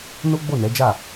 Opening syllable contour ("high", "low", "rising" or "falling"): high